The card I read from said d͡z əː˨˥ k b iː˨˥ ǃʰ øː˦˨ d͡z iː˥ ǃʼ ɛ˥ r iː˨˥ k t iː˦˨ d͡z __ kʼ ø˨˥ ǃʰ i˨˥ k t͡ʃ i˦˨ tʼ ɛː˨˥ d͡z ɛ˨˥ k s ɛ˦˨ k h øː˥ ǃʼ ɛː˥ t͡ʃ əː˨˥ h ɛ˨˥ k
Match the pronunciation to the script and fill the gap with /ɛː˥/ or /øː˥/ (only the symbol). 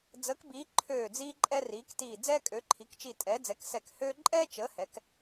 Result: ɛː˥